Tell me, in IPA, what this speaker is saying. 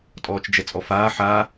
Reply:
tʼɔːt͡ʃd͡ʒɛt͡sʼɔfaː ħa

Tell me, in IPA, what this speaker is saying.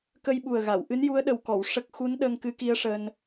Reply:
kə˧jɓu˨˩ə̯ɣa˨˩˨w ʔɨ˧˥nju˧˥ə̯ɗə˨˩wkɔ˨˩˨w ʂə˦˥k̚ xu˧˥n ɗəː˧ŋkɨ˧˥ki˧˥ə̯ ʂəː˧n

